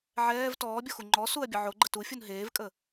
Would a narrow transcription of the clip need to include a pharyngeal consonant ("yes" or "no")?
yes